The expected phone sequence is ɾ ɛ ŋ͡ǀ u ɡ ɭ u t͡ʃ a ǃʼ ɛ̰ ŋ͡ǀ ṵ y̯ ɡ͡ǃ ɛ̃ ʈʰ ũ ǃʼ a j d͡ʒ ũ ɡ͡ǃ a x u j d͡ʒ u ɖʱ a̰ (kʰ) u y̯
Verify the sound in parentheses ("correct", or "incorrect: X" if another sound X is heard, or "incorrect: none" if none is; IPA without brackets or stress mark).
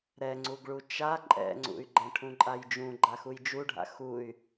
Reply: incorrect: x